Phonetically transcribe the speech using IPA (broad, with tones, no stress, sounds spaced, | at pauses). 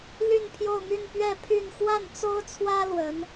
l y˥˧ n pʰ j o˥˧ ʊ̯ m y˥˧ n p ɥ ɛ˥˧ pʰ y˥˧ n x w a˥˩ n t͡s o˥ ʊ̯ t͡sʰ w ä˥ l w ə˧˥ n